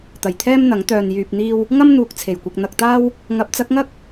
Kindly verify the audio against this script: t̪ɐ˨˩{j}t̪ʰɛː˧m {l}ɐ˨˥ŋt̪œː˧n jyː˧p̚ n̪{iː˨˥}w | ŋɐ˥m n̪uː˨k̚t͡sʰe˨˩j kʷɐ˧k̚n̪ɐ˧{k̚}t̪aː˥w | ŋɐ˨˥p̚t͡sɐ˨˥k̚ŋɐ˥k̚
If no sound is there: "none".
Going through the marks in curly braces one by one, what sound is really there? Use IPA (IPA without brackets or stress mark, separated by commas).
j, n̪, iː˧, k̚